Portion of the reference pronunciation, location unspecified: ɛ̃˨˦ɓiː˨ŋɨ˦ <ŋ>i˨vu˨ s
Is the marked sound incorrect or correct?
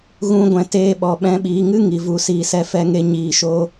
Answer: correct